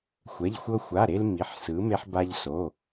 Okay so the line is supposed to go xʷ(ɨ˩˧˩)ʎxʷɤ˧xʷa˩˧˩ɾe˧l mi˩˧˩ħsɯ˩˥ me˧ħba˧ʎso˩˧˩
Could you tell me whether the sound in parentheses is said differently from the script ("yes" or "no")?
yes